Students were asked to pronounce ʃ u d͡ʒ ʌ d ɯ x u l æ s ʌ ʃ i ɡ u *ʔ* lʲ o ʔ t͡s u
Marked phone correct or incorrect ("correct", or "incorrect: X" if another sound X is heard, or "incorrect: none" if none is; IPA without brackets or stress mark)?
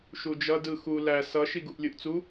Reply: correct